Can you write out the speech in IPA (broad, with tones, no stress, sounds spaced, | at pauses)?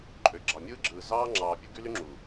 ǃʼ ø˨ ɡ͡ǁ ɑ˨ mʲ ɯː˦ ɡ͡ǁ ɯː˨ z ɑː˦ ŋ͡ǁ ɑː˨ pʲ u˦ ɡ y˦ l y˦ ŋ͡ǁ uː˨